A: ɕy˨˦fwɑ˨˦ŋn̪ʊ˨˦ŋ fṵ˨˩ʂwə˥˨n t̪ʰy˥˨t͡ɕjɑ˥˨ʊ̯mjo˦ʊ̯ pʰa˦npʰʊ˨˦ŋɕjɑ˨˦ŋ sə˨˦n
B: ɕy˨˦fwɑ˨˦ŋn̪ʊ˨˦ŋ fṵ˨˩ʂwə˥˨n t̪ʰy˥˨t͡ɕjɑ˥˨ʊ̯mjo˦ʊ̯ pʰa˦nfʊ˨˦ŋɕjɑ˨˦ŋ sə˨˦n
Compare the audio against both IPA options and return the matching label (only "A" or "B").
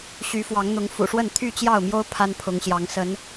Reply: A